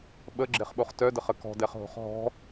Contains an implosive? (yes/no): yes